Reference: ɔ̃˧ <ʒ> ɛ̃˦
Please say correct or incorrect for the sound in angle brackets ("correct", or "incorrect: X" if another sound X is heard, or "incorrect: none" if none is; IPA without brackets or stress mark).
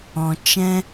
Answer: incorrect: t͡ʃ